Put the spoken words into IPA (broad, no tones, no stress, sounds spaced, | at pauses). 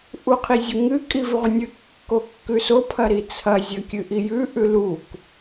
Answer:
ʔ u qʰ i zʲ u ŋ ɨ kʼ i v ʉ ʁʷ ɐ nʲ ɨ kː o kː ʉ s o pʰ ɐ ɾ i t͡sʰ ɐ zʲ ɐ kʲ ɨ ʔ i j ʉ ʔ ʉ l u k